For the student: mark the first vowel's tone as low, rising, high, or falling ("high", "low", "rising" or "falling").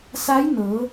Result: rising